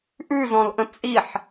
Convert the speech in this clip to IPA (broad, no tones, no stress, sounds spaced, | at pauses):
ʔ ʉ z ɔ̃ l ʔ ə̃ t͡sʼ i ħ